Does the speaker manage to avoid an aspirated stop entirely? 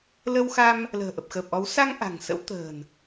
yes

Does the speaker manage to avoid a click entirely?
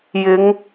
yes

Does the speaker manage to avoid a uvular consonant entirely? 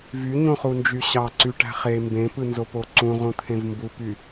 no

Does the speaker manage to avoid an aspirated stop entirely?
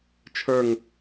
no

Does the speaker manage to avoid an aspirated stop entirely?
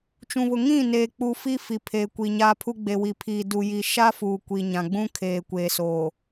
no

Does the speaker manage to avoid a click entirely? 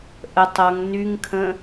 yes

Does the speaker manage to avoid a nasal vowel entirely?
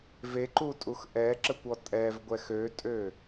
yes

